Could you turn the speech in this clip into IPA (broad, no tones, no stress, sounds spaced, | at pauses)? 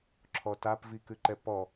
ǁʰ ɔ t a p v i k ʉ ǃ ɛ p ɔ